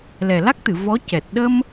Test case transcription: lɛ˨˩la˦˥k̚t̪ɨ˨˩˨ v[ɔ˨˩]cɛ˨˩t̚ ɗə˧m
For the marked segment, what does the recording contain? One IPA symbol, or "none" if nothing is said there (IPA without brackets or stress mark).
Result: ɔ˧˥